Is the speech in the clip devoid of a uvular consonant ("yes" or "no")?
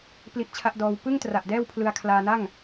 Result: yes